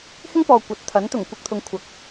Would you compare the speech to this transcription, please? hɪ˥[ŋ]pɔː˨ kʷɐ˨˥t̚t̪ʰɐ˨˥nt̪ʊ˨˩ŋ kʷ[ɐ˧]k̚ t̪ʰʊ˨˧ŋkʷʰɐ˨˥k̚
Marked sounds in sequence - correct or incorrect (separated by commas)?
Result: correct, correct